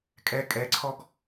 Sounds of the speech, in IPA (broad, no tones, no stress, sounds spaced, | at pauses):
kʼ ɛ kʼ ɛ ǀʰ ɔ ɡ